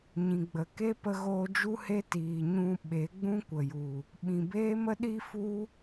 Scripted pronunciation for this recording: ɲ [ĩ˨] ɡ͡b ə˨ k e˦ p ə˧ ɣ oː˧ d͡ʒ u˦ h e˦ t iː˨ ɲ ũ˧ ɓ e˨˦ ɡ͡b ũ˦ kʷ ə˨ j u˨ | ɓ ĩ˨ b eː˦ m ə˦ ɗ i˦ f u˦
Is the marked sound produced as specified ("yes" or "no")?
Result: yes